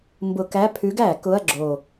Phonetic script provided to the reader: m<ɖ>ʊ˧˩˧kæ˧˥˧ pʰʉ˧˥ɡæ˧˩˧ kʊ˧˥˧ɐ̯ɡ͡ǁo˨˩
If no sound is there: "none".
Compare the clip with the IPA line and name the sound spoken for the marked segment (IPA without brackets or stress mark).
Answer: b